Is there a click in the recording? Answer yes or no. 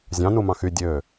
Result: no